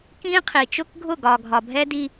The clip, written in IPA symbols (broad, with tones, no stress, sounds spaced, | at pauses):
k ĩ˦ qʰ i˨ t͡ʃ ʊ˦ k ɡʱ ʊ˦˨ ɡ ɒ˨ ɡʱ ɒ˨ bʱ ɛ˦ d i˦